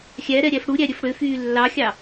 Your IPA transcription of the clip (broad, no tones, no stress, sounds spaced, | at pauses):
xʲ æ ɾ ɛ ɾʲ æ f ɽ u ɾʲ æ ɾʲ ø f ɽ ø f yː lː ɑ xʲ ɑ